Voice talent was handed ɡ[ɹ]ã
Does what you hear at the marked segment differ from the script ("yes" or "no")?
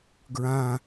no